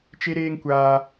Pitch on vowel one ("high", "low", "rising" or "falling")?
high